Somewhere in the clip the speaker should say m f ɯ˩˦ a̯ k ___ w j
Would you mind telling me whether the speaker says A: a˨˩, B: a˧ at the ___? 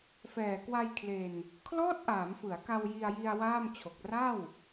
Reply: B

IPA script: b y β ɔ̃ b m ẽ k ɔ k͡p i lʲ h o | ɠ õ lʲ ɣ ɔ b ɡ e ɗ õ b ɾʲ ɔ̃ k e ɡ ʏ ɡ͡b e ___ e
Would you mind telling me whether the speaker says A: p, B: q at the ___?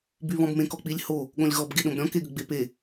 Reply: A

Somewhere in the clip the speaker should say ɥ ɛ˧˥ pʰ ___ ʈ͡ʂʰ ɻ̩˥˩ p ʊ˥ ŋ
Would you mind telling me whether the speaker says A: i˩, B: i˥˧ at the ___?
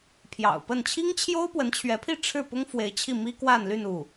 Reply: B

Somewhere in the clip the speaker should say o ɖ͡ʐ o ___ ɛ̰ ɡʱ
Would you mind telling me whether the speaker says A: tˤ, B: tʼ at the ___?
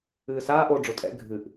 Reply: B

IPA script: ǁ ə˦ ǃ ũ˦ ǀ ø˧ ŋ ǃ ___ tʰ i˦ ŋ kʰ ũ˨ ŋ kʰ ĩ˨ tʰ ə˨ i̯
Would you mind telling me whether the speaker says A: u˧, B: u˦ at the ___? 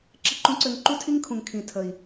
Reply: B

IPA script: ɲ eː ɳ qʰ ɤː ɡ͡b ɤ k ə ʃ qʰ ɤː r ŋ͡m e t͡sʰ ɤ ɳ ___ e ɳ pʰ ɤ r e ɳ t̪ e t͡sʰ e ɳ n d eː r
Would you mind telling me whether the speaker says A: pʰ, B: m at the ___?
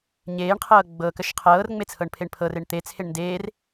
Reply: A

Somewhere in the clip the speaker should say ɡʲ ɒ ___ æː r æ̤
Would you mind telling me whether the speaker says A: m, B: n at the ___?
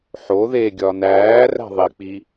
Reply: B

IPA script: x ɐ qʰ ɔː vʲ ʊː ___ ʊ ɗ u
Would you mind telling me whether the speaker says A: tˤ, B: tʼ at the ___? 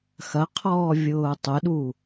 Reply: A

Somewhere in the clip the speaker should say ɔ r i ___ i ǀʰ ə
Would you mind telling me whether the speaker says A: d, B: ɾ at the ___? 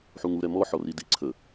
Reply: A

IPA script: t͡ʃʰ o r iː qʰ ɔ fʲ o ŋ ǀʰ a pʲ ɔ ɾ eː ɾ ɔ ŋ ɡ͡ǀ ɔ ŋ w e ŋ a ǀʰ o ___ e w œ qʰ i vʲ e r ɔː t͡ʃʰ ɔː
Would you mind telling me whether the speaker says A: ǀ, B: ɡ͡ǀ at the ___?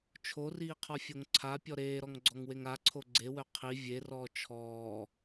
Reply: B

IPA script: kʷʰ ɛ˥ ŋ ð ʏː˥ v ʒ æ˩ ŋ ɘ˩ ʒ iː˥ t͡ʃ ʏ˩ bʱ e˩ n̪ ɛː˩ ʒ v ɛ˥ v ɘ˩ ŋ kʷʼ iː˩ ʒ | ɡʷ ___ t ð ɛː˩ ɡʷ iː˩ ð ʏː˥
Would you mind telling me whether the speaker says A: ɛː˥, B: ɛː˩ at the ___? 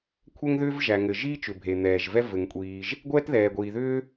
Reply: A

